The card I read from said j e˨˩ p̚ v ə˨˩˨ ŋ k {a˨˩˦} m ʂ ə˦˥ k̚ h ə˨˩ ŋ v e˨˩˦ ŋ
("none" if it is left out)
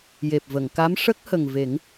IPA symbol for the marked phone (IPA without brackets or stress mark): a˧˥